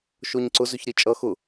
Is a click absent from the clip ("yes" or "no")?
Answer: no